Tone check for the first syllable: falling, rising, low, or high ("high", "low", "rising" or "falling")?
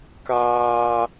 high